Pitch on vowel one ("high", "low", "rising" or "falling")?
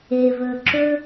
low